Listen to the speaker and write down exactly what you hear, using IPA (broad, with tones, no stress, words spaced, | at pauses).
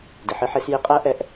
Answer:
dɪ˩ħɪ˨˥ħe˨˩˦s jɪ˨˥ qʼæ˦˥ʔɛ˨˥ʔ